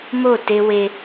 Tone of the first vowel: falling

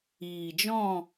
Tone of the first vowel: low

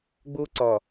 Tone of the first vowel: high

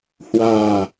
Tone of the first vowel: low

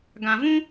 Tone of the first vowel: low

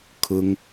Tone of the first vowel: high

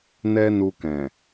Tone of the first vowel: high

